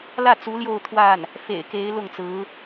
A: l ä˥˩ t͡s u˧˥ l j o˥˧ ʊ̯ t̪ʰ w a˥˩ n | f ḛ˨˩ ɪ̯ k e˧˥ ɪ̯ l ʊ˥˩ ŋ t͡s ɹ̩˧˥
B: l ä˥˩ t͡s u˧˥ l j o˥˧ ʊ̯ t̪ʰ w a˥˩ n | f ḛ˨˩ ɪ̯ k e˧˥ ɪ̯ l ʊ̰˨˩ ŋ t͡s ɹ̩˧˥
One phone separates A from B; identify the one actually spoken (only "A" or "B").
A